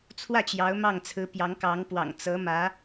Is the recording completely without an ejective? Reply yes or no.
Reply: yes